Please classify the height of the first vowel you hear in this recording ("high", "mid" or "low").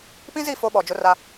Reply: high